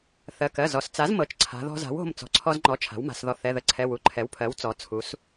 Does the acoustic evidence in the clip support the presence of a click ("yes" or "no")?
yes